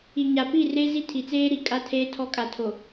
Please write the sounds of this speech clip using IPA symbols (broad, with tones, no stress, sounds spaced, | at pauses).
i˨ ɲ a˨ p i˦˨ r e˦ z i˦ tʰ i˨ t͡s eː˦ ɾ i˨ kʼ a˦ tʰ eː˦ tʰ ɔ˦ kʼ a˨ tʰ o˨